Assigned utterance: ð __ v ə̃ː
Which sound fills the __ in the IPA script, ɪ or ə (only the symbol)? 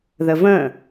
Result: ə